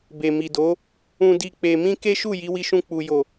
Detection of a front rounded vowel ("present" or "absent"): absent